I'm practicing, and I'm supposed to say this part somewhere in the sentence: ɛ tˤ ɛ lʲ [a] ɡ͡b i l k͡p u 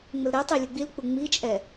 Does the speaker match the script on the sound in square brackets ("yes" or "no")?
no